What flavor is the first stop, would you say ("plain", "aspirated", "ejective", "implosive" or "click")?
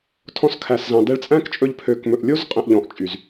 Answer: aspirated